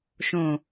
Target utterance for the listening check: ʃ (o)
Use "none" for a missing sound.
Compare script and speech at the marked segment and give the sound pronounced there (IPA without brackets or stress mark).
õ